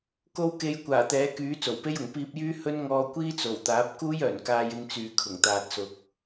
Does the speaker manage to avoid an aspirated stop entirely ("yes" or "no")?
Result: no